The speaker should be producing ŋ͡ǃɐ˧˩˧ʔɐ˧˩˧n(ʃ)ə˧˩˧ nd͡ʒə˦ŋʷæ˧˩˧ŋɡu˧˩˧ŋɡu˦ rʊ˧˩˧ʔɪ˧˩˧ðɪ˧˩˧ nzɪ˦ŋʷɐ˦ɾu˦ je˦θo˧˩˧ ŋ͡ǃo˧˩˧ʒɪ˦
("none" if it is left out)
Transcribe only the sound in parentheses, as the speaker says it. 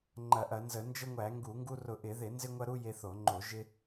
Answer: z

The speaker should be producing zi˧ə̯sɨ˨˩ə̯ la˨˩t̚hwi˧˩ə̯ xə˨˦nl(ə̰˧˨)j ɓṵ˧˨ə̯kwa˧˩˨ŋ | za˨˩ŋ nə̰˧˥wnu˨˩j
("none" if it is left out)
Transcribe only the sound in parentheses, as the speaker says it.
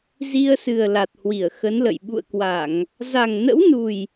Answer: ə̰˧˨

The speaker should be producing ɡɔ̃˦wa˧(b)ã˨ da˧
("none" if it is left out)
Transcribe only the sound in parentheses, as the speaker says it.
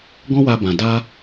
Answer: b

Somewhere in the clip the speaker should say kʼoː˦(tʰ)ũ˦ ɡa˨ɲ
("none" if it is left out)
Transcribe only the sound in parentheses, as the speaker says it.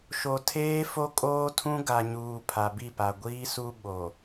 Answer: tʰ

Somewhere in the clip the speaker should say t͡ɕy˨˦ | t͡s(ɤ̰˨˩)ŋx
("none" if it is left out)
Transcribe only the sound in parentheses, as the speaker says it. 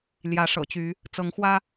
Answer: ɤ˨˦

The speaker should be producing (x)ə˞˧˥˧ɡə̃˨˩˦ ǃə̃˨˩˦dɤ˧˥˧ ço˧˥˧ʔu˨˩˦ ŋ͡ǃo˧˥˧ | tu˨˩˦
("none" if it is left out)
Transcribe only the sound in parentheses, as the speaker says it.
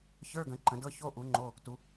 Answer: ç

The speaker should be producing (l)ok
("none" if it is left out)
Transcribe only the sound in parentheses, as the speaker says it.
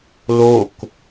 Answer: l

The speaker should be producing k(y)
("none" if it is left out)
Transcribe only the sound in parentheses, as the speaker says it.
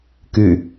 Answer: y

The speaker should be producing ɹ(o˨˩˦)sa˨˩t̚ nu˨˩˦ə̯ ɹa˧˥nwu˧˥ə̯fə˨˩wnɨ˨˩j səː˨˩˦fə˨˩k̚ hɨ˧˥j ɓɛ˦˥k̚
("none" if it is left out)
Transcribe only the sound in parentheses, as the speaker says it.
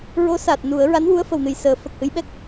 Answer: o˧˥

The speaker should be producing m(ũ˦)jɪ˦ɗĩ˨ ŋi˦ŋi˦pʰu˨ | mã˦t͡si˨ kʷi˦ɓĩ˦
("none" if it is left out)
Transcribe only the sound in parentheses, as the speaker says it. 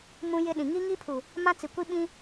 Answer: ũ˦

